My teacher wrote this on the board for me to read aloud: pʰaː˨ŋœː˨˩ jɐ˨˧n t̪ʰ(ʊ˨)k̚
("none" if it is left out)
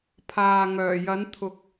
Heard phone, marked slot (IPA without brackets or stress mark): ʊ˨